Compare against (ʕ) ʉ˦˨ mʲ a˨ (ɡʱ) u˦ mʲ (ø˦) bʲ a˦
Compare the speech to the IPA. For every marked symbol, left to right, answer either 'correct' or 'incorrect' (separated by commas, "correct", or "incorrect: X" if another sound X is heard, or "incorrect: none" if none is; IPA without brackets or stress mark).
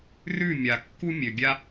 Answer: incorrect: r, incorrect: kː, incorrect: ø˨